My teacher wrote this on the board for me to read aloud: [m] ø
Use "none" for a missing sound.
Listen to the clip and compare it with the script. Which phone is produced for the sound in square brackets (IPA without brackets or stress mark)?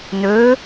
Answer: n